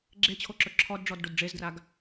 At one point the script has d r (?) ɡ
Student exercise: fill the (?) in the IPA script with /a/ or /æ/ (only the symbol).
a